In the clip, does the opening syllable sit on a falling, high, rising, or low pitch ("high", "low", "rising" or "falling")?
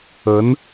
rising